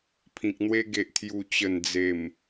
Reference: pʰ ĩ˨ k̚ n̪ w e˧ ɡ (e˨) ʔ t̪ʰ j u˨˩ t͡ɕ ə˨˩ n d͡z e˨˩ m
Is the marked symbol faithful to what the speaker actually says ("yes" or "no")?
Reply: yes